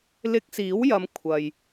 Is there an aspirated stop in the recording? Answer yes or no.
yes